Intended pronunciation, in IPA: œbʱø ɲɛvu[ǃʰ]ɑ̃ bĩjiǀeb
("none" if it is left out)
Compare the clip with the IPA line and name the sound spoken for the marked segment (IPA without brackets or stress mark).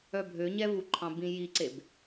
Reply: ǃʰ